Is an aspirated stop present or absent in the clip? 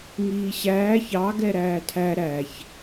present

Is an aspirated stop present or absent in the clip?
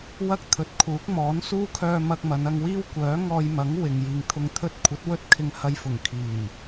present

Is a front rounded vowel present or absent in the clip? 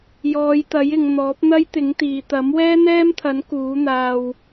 absent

